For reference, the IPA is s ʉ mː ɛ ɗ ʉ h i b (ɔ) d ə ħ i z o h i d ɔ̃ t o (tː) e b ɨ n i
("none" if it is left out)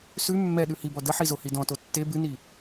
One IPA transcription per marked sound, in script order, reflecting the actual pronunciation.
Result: ɔ, tː

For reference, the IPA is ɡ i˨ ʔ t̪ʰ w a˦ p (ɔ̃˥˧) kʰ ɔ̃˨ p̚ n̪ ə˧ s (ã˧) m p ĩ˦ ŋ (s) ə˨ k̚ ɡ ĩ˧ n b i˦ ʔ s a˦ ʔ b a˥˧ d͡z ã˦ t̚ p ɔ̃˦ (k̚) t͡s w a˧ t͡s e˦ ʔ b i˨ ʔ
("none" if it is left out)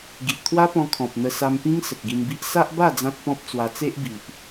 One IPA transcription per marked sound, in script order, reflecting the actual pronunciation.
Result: ɔ̃˧, a˧, s, p̚

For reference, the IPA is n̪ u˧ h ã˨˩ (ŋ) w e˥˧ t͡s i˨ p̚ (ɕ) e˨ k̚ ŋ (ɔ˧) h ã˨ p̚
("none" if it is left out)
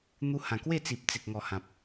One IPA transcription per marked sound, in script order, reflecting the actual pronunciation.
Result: k, t͡s, ɔ˨˩

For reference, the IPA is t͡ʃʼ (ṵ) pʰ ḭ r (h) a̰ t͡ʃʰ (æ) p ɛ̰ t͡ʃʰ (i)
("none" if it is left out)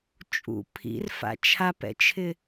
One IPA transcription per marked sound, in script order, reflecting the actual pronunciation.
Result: ṵ, f, a, ɪ

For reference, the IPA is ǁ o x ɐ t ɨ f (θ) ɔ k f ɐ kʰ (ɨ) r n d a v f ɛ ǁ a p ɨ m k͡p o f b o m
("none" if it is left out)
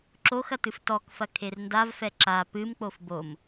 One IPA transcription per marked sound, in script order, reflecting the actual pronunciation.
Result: t, e

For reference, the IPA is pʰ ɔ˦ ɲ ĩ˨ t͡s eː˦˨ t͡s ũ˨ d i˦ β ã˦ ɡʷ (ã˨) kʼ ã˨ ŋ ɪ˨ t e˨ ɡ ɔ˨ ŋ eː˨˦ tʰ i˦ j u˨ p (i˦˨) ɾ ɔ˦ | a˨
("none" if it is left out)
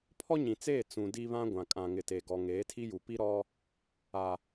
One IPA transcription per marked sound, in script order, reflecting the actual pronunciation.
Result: ã˨, i˦

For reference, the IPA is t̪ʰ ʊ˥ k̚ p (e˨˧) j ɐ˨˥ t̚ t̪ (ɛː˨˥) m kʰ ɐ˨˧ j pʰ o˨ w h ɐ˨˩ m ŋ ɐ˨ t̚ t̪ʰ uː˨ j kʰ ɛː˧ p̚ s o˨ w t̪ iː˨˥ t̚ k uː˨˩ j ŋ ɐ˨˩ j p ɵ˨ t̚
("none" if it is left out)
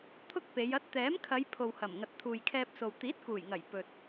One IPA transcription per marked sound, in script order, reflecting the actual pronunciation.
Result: e˨˧, ɛː˨˥

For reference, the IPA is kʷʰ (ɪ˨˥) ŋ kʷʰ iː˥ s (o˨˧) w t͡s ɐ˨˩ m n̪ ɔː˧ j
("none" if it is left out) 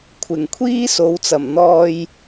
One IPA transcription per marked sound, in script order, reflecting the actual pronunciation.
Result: ɪ˨˩, o˨˧

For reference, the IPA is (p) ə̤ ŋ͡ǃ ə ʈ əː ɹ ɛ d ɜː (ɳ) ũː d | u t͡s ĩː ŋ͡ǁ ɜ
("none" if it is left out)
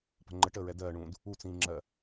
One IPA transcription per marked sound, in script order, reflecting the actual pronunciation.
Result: p, ɳ

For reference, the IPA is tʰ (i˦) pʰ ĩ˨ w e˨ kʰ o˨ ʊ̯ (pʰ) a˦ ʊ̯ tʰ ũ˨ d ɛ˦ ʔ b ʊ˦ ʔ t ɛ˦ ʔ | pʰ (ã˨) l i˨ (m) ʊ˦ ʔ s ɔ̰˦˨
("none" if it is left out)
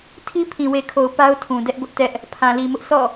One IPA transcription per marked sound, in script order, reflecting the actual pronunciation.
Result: i˦, p, ã˨, m

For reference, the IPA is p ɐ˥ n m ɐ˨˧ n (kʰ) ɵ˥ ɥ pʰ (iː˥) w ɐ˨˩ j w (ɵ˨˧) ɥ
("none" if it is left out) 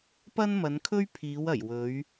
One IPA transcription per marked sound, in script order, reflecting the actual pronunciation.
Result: kʰ, iː˨˧, ɵ˨˧

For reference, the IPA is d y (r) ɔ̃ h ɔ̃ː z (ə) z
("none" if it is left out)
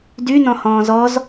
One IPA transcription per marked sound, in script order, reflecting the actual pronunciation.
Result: n, ɔ

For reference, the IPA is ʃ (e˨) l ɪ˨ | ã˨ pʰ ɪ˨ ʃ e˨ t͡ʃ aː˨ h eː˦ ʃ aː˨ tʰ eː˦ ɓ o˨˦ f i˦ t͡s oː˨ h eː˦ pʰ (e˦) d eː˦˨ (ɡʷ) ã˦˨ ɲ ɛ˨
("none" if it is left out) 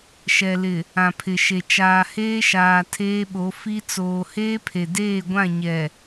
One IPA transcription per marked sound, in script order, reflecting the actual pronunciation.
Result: ɛ˨, e˨, ɡʷ

